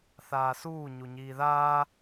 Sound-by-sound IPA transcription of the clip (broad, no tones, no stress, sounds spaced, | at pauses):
θ aː s uː ɲ u ɲ iː ð aː